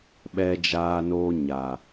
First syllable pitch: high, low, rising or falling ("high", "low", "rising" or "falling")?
high